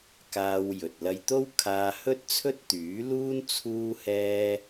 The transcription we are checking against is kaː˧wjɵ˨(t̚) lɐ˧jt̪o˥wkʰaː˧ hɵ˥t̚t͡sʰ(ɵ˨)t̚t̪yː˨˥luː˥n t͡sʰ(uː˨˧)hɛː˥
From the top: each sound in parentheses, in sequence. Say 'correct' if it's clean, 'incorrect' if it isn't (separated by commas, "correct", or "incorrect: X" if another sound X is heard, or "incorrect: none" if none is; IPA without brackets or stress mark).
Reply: correct, incorrect: ɵ˥, incorrect: uː˥